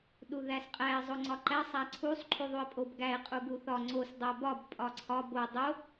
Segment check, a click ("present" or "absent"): present